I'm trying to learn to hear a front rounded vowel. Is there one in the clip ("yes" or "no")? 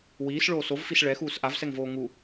no